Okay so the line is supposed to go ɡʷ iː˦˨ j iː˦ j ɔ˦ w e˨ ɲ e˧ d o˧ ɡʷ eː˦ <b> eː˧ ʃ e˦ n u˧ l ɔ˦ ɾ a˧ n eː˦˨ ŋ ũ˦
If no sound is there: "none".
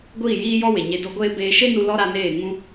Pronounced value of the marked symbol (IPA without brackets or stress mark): b